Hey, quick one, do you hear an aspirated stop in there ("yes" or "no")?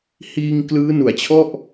yes